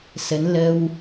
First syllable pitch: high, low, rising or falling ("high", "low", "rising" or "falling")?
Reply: rising